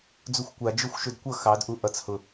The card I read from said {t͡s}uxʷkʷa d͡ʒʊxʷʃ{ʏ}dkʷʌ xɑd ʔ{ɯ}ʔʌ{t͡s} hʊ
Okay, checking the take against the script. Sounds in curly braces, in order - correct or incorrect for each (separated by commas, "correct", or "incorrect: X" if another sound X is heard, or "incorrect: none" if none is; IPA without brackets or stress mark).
incorrect: d͡z, correct, incorrect: u, correct